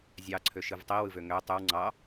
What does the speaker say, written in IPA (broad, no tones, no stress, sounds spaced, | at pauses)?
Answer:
zʲ ɑ ǀʰ ø ʃ ɯ v tˤ i w ɯ v ø ŋ ø tˤ y w ŋ͡ǀ ɑ